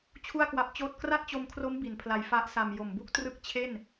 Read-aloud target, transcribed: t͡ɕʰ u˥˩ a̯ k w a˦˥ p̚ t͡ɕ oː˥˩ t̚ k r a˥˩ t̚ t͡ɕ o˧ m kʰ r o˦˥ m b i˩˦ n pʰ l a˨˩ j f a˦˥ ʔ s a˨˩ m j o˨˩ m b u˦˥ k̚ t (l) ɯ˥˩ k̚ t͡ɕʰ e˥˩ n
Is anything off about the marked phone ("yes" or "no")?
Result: yes